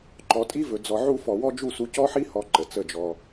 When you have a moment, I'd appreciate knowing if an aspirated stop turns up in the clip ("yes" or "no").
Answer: no